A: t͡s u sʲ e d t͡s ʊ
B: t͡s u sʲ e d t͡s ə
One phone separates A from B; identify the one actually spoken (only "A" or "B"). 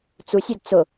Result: A